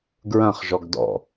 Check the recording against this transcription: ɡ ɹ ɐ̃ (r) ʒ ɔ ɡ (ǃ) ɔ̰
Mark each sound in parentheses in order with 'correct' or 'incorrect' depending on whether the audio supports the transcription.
incorrect, incorrect

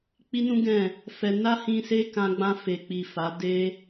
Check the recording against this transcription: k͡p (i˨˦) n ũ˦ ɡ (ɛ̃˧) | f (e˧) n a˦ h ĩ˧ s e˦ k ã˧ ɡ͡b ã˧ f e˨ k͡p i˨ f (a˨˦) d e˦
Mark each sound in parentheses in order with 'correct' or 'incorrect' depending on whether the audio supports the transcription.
incorrect, incorrect, incorrect, correct

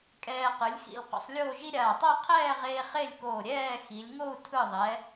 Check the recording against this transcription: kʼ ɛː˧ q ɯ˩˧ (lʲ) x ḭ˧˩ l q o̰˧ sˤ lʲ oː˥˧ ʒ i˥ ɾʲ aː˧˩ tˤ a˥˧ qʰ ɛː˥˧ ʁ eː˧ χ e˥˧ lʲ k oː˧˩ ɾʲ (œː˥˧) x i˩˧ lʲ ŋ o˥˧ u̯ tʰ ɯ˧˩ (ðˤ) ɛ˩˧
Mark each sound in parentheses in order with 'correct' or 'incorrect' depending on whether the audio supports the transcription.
correct, incorrect, correct

